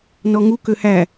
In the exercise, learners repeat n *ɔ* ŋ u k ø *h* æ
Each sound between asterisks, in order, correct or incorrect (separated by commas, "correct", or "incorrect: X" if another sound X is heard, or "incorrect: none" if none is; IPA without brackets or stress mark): correct, correct